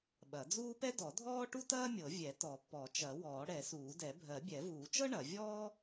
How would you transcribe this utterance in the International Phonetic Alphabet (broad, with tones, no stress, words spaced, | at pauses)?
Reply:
ɓɐ˨˩˦d͡zuː˥ pɛ˥dɔ˨˩˦dʱɔː˥ ʈu˥tɐː˥mʲɤ˨˩˦ vʲɛ˨˩˦tɔ˨˩˦ pɔ˨˩˦t͡ʃɐ˨˩˦ wɔː˨˩˦ɽɛ˨˩˦suː˨˩˦ dɛ˨˩˦ bʱɜ˨˩˦bʲɛ˨˩˦vuː˨˩˦t͡ʃɤ˥ ɳɐ˨˩˦ vʲɔː˥